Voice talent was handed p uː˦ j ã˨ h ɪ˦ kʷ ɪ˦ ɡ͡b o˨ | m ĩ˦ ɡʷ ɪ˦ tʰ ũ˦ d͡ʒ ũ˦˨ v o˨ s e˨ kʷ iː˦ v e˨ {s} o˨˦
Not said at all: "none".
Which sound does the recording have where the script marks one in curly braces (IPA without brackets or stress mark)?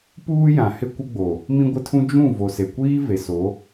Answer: s